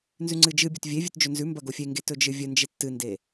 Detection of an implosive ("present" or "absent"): absent